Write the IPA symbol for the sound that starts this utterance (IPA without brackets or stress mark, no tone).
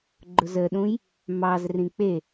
ɡ͡ǃ